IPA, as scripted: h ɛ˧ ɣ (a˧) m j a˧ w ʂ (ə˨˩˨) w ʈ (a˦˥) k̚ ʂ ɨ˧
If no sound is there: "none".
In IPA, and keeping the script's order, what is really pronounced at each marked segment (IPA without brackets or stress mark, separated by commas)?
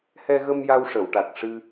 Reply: ə˧, ə˨˩˨, a˨˩